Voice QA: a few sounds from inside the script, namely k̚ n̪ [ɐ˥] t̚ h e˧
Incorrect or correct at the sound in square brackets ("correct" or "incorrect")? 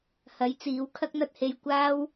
correct